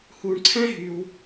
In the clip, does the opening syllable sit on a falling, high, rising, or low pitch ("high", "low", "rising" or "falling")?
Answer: low